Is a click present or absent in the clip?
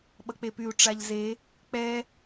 absent